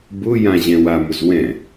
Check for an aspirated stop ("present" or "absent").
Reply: absent